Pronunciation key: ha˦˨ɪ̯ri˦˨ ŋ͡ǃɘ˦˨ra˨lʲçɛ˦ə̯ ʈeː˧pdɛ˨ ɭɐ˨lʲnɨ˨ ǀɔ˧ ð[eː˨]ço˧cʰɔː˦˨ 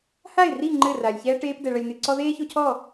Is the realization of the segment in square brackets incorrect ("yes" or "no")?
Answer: yes